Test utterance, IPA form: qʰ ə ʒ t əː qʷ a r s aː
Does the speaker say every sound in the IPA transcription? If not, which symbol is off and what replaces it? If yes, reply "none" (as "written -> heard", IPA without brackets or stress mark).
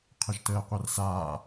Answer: none